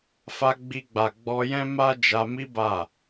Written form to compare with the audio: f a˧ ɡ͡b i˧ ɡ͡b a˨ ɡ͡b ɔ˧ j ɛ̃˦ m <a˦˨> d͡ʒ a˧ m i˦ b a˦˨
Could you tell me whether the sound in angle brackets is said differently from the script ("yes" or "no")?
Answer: yes